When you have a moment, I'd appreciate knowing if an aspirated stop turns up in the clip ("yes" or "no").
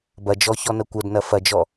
no